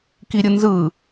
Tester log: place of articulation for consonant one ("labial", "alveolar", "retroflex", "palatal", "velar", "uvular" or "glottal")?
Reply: velar